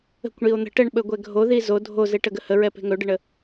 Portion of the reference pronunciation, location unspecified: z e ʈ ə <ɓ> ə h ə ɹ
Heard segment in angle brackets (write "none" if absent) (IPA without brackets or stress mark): ɡ